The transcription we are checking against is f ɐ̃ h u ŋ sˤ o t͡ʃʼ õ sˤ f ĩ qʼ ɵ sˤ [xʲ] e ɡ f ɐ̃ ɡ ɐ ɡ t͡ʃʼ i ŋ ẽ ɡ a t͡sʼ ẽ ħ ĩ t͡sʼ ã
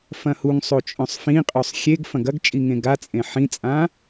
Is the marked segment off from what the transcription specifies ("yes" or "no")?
no